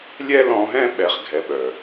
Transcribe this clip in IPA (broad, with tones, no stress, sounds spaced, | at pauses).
lʲ ɛ˦ l ɔ̃˧ ɦ ɛ̃˦ ɓ ɛ˦ χ ɡʱ ɛ˦ ɓ œ˧